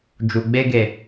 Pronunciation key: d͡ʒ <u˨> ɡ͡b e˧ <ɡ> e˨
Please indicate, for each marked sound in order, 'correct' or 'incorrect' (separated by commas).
correct, correct